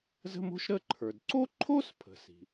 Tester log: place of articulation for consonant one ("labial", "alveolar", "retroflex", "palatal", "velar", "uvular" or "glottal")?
alveolar